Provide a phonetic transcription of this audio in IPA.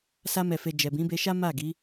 sa˧mɛ˨fe˨ d͡ʒɛ˨bĩ˨˦be˧ʃa˦ ma˦˨ɡi˨˦

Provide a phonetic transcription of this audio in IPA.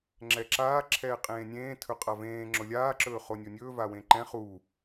ŋ͡ǁɛǁaː ǁʰɛːqʼẽːnʲẽː tʰɵqʼavẽː ŋ͡ǁʊlʲaː ǁɵːχonʲonʲɵː vawẽǃɛ̃ χu

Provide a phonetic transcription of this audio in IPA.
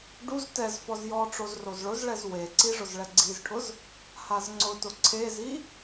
ɖuz tɛzfɔz jɔʈ͡ʂoz rozɭʊzɭɛz weǀi ʐʊzɭɛɡ͡ǀizʈʰʊz | hazŋ͡ǀʊtʊ ǀʰezi

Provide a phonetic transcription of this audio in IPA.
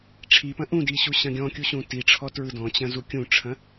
ʈ͡ʂʰipɐ̃ ʔũdi ɕuɕɐ̃ɡʲɔ̃kʲu ɕũtiʈ͡ʂʰɔ tɹɯdɔ̃t͡ɕɐ̃ zukʲũʈ͡ʂʰɐ̃

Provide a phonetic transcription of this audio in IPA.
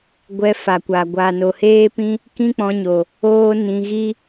ɡʷɛ˧fa˨kʷa˨ ɡʷa˨no˨heː˦ pĩ˦ | kĩ˦k͡pɔ̃˧ɲo˨ | oː˦nĩ˧ɣi˦

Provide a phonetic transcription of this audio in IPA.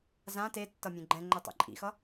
zã tetːʌ mʲẽɡ͡ǃɛ̃ŋ͡ǃɛ tˤḛǃʼḭxʌ

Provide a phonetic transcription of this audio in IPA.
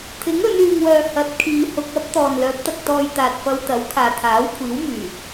t̪ʰɪ˨˥ŋɵ˨˧nyː˨ŋwœː˨ hɐ˨˥t̚kʰiː˨˧ hʊ˧k̚ɐ˥p̚t̪ɔː˨n lœː˨˥p̚t̪ɐ˧k̚t̪ɔː˧j t̪aː˨t̚fɐ˧wt̪ɐ˨˥w kʰaː˨t̪ʰaː˨˥wkʷʰiː˨˥wmyː˨˩

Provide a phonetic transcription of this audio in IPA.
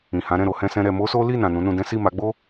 ĩ˨hã˨˦ɾɛ̃˦˨ ɾo˨˦hɛ̃˦sɛ̃˦ɾɛ˧ mo˦so˦ li˦˨nã˨ nũ˨˦nũ˧dɛ̃˦ si˦˨ma˨˦ɡ͡bo˦

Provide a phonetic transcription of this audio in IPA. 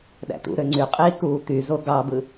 ɗæ̰t̪ṵɾø ŋ͡ǀyqʼiː kuːt̪yzo ɡɑbɯ

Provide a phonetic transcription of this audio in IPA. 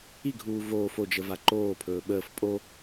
iɡʱuː voːf od͡ʒəva ǃoːpʰɵː ɓəːf pʼo

